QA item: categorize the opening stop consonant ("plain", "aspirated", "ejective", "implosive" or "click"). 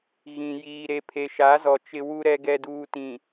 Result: aspirated